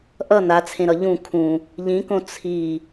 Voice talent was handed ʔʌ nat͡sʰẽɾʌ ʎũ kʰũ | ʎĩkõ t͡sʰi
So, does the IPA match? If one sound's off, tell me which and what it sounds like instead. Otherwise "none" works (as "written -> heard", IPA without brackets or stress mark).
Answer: none